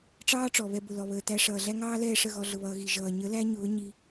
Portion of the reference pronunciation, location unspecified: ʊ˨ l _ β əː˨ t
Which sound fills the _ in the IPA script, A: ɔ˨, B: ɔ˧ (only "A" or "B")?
A